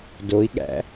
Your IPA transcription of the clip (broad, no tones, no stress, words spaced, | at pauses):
doi̯ɠæ̰